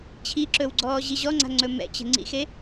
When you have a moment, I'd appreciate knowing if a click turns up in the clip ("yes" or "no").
yes